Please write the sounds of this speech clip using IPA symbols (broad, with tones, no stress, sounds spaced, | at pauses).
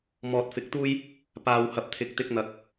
m ɔː˨ t̚ f ɪ˨˥ k̚ t̪ uː˥ j | p aː˨ w h ɐ˨ p̚ t̪ʰ ɪ˨˥ k̚ t̪ ɪ˧ k̚ n̪ ɐ˨˥ k̚